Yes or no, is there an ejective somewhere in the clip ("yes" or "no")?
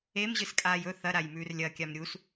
yes